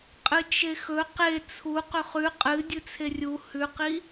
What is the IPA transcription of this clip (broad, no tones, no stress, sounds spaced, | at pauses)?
qʼ ɨ t͡ʃ e x ɵ q e t͡sʰ u q ɵ χ ʉ qʼ ɨ dʲ ɨ t͡sʰ e rʲ u h ʉ q i